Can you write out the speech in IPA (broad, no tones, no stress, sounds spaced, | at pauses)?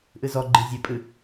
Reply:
ʔ ɨ z ɔ ɡ͡ǃ i zʲ ø pʼ ɨ